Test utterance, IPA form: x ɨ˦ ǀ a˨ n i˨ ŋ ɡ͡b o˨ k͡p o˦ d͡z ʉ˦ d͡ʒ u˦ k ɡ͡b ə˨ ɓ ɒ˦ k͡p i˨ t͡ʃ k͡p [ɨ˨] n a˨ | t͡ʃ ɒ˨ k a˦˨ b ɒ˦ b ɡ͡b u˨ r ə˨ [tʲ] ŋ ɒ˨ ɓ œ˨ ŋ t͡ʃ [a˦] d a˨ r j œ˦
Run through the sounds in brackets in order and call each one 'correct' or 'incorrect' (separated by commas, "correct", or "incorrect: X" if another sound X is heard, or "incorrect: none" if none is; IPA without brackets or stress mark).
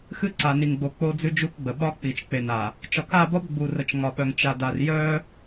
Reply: incorrect: e˨, incorrect: t͡ʃ, incorrect: a˨